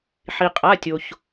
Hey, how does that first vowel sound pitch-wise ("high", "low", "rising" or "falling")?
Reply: low